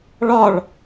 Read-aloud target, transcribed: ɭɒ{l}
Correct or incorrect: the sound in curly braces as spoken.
incorrect: ɭ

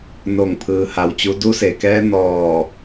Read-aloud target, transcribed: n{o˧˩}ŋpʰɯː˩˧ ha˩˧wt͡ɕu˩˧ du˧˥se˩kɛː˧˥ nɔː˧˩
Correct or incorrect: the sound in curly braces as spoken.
correct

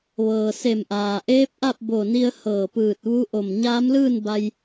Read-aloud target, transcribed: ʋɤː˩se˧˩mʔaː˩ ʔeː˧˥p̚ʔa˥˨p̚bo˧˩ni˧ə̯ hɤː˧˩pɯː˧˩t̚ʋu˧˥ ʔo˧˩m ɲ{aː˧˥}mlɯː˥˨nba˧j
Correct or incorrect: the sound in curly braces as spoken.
correct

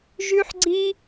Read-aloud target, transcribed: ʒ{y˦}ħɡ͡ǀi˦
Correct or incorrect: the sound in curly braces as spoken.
correct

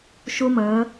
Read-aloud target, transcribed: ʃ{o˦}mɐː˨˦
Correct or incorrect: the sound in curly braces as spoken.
correct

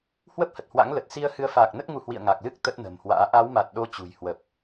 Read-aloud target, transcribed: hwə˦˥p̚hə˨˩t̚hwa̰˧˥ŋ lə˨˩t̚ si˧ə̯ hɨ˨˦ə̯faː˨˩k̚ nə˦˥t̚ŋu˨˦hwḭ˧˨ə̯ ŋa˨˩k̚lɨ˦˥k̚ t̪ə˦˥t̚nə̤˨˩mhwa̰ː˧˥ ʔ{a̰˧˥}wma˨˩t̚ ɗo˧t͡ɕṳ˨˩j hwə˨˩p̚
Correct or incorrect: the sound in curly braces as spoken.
incorrect: a˨˦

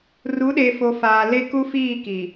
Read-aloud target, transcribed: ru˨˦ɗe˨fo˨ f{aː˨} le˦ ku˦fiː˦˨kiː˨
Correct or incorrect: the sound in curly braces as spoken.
correct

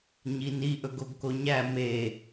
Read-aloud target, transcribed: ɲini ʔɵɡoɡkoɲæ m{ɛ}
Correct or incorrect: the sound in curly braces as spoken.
incorrect: e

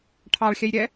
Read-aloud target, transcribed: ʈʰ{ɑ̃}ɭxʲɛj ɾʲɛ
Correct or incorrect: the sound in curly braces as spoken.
incorrect: ɑ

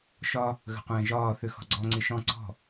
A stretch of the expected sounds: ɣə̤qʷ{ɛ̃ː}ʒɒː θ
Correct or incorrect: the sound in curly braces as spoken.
correct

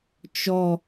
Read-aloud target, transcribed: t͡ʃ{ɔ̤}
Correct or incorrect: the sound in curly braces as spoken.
incorrect: ɔ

